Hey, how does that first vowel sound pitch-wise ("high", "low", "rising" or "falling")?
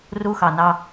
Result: high